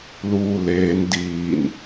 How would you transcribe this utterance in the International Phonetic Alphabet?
l uː l eː n d iː n

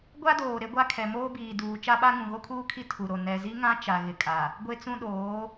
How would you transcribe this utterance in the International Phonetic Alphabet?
ɡʷ a˦ d oː˨ ɾ e˦ ɡʷ a˦ kʰ ɛ˨ m oː˦ b iː˨ d uː˨ t͡ʃ a˦ ɓ a˦ ŋ ũ˨ ɣ o˦ kʰ uː˦ kʰ i˦ tʰ u˨ ɾ o˨ n ɛ˨ z i˦ ŋ ã˦ t͡ʃ a˨ ɣ ɪ˨ kʼ a˨ | ɡʷ e˦ t͡s ũ˦ ɗ oː˨˦

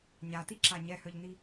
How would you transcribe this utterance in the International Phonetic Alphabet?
ɲ a t i ǁ a ɲ ɛ h œ ʎ n i

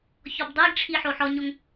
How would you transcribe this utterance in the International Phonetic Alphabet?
ç ɔ b dˤ i ɡ ʈ͡ʂʰ i ħ o ħ ɔ ɲ o ŋ

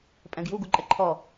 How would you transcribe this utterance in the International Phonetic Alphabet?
pʼ ɛ̃ ɡ j u ɡ u ǃʼ ɛ ǃʰ ɔ

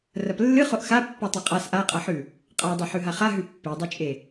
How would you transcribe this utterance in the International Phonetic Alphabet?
r ɐ p lː ɨ χ o ʔ x a pː o tˤ e qʼ a s ʔ a qʼ ɐ ħ ʉ | qʼ a dˤ e ħ ʉ ɦ a χ a ɦ ʉ pː i dˤ ɨ t͡ʃʼ e

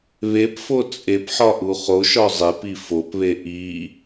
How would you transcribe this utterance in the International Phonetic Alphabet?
β e p f o t͡sʼ e p ħ ɒ ʔ u χ o ʃ ɒ zˤ e p i f o p β e ʔ i

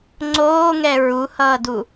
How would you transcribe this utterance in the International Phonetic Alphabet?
ŋ͡ǀ oː ŋ ɛ ɹ u h ʌː d u

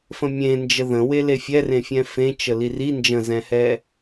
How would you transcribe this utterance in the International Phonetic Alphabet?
f ə̃ mʲ ẽ n d͡ʒ ə ð ə̃ w e l e fʲ ɛ r ẽ fʲ ɛ̃ f ẽ t͡ʃ ə l i r i n d͡ʒ ə̃ z ɛ̃ h ɛ

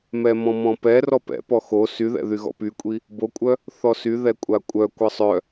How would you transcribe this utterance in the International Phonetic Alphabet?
m ɛ m ɔ̃ m ɔ̃ p ɛ r ɔ p ɛ̰ p ɔ x o s y ð ɛ̰ ð y ɣ ɔ̰ p y kʷʼ i | b o kʷʼ œ | θ ɔ s y ð ɛ kʷʼ a kʷʼ œ kʷ ə sˤ œ

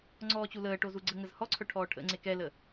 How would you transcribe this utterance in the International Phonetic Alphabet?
ŋ͡ǀ ɔː t͡ɕ u l əː ʈ o z u ɡ͡ǀ ə ŋ ə z h ɔ ǀʰ œ ʈʰ ɔː ʈʰ ə̰ ŋ͡ǀ e k ɛ l ə

